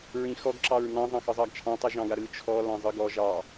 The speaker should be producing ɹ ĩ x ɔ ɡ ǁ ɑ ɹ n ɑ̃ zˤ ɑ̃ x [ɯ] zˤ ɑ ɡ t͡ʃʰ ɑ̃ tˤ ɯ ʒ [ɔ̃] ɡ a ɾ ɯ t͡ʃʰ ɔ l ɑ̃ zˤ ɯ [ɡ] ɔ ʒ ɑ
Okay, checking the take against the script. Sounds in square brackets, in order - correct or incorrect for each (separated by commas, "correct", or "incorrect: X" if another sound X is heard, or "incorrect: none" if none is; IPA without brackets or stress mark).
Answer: correct, incorrect: ɑ̃, correct